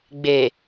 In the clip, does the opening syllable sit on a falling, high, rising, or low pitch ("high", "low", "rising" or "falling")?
low